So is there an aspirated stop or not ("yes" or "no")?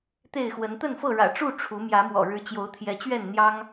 yes